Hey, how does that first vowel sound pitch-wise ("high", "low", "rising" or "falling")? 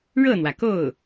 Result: falling